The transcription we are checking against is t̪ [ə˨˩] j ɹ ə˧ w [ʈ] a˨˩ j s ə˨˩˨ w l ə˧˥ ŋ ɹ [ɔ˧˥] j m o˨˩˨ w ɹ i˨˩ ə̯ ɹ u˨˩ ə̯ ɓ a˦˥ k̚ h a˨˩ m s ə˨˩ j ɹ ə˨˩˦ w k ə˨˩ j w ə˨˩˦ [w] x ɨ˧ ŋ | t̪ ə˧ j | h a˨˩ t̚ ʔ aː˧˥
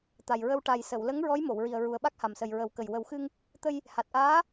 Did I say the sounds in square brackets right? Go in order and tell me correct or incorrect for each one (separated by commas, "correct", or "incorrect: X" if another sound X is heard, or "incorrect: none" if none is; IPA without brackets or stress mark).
incorrect: a˨˩, correct, correct, correct